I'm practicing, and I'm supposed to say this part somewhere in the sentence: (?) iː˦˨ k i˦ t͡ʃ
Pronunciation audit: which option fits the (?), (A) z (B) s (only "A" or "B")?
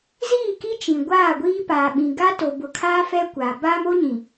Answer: A